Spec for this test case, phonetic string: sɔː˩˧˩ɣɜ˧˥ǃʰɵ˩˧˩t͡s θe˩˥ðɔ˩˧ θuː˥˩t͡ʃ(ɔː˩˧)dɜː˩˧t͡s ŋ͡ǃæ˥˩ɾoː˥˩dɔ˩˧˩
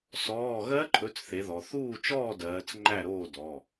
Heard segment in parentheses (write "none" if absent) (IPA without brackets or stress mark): ɔː˥˩